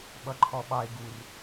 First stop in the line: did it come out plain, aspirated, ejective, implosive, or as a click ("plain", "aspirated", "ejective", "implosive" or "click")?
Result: implosive